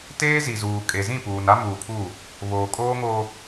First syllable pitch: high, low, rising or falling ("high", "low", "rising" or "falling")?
high